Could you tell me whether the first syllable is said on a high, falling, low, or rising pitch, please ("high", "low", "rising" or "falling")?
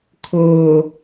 low